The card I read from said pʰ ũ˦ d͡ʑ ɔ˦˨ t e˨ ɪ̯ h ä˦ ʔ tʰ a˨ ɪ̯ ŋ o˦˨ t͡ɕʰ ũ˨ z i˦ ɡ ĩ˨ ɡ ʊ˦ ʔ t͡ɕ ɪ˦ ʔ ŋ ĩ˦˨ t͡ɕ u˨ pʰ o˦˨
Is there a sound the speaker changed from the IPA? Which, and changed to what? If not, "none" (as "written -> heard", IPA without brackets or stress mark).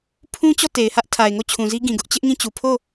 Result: d͡ʑ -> t͡ɕ